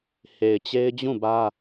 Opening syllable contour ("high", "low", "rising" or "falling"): low